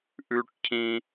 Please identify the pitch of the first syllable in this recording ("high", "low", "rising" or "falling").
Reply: high